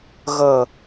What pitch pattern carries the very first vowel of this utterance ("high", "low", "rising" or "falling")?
falling